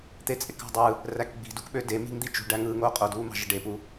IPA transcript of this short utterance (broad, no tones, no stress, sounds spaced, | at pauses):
t̪ e t͡sʼ e k ɑ̤ dˤ ɯ | r æ k ɡ͡b i̤ d u k ɓ ø d e m i̤ ŋ d̪ i t͡ʃ ṳ ɖ æ ŋ ɯː ŋ oː qʼ o d uː m ɑ̤ ʒ e ɖ e p u